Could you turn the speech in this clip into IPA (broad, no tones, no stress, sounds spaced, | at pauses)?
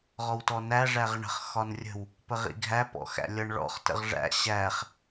ʁ ɔ w t ɔ n æ ʐ æ ʁ ɳ ə̤ χ x ɒ n rʲ ə̤ w | p ə ʁ ḭ ɡʱ æ p ɔ̰ x æ̰ lʲ ʌ ɳ ɭ ɔ̰ χ t ə̰ ʁ ʐ æ̰ ɕ æ χ